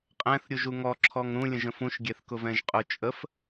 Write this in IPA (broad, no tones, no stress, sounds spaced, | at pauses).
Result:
qʼ ɛ̃ θ ɾʲ u ʒ u ŋ ɔ ǁʰ ɔ ŋ ɾ ũ lʲ ə̃ ʒ ə̃ f ũ ʃ ɡʲ ɛ θ k ʊ v ɛ̃ ʒ qʼ ʊ t͡ʃʼ ə f